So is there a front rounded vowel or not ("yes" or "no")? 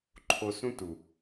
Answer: no